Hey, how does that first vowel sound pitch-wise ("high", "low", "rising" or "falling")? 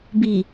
low